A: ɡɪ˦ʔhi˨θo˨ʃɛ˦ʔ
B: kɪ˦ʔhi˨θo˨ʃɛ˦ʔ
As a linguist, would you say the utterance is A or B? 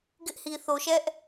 A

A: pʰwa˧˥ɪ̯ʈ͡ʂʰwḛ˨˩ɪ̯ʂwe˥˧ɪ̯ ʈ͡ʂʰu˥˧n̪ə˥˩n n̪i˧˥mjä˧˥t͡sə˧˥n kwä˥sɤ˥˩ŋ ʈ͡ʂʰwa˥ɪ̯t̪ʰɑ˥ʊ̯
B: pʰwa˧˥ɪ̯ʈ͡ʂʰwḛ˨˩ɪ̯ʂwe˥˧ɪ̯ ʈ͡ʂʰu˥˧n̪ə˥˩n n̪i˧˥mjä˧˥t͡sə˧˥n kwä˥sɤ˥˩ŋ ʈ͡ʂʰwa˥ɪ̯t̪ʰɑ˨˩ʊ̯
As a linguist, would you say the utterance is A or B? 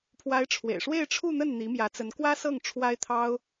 A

